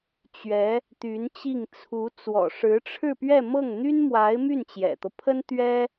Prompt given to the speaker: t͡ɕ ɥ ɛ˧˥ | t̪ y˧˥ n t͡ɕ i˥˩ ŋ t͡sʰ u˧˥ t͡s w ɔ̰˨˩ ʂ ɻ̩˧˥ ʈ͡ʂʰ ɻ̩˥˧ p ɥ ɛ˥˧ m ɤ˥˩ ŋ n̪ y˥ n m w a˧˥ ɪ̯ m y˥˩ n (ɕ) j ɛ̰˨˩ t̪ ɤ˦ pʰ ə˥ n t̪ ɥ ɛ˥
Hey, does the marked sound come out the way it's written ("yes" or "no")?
no